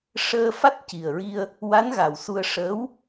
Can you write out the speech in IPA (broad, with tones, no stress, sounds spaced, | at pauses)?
ʂ əː˧ f a˦˥ t̚ c i˨˩ ə̯ ɹ i˧ ə̯ | w a˧˥ n ɣ a˨˩ w s u˧ ə̯ ʂ əː˧˥ w